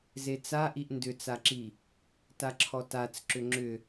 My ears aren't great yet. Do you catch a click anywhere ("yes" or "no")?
yes